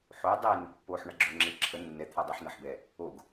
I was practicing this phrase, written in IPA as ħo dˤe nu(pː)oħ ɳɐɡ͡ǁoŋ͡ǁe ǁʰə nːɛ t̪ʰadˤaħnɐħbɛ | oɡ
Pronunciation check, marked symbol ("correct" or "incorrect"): correct